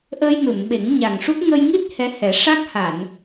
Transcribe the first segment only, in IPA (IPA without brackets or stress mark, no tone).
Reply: ʔ